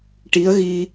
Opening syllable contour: rising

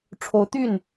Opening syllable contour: rising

